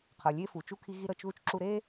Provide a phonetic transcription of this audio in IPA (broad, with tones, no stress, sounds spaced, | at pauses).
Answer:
qʰ ɤ˩ lʲ e˥ f u˩ t͡ʃ u˥ kʰ i˥ ɣ i˥ ɾ ɤ˥ t͡ʃ ð u˥ t͡ʃ ǁ u˥ ɾ e˥